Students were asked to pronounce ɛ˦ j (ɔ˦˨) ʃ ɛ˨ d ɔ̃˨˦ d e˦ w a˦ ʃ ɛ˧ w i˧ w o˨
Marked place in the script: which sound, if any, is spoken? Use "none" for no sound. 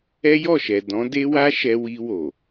ɔ˦˨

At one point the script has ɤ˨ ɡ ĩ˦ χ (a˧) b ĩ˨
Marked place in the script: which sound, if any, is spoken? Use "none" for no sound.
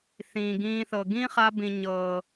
a˧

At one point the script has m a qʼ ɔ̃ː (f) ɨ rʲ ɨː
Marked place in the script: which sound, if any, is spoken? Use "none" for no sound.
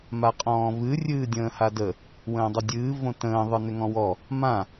v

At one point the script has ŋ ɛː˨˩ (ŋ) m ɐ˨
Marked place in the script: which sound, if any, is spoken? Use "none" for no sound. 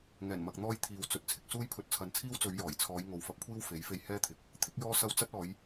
n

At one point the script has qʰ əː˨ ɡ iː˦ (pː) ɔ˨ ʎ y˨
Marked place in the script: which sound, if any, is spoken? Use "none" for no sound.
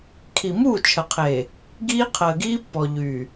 pː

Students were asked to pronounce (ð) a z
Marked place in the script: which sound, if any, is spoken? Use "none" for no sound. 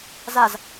z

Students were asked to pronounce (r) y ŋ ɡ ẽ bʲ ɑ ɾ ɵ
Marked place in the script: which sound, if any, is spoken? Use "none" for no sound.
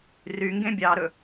r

